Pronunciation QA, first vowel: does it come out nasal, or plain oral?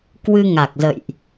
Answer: oral